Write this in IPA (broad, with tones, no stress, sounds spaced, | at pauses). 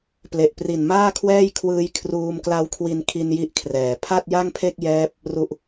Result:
p l e˨˩ ʔ p r i˨˩ n m aː˥˩ kʰ w ɛː˥˩ j kʰ w ɯː˦˥ j kʰ r uː˧ m k l a˦˥ w kʰ w i˧ n kʰ i˧ n j i˦˥ ʔ kʰ r ɛː˨˩ pʰ a˥˩ t̚ j a˥˩ ŋ pʰ e˥˩ k̚ j ɛː˦˥ p̚ | r u˨˩ ʔ